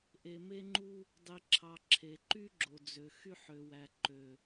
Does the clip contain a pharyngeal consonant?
yes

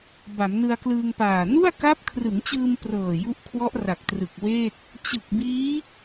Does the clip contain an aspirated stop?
yes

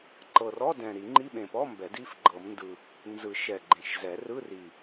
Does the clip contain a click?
yes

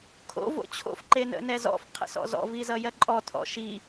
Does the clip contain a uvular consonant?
yes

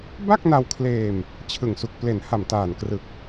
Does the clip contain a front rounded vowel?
no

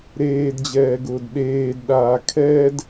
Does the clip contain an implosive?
yes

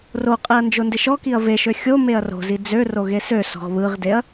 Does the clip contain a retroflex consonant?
no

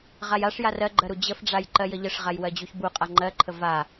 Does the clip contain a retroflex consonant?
yes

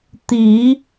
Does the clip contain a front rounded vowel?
no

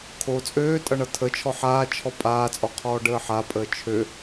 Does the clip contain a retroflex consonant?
yes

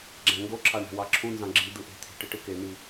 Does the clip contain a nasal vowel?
yes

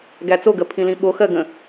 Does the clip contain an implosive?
yes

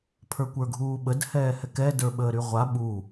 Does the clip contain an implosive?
yes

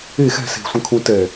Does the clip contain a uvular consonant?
no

